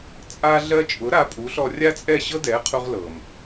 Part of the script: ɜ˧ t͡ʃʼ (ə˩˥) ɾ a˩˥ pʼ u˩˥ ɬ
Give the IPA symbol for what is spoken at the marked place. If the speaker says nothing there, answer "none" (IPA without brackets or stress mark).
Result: ʊ˩˥